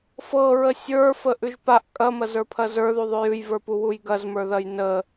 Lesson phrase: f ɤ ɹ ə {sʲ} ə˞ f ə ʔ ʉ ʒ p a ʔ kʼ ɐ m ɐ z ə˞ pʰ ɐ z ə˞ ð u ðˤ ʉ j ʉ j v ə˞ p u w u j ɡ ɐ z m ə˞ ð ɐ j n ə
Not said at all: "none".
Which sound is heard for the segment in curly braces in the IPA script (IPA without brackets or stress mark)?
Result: sʲ